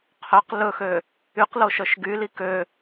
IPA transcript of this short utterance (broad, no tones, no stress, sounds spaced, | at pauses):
qʰ œ q l ɵ x ø | y q l o ʃ œ ʃ ɡ y l i k ø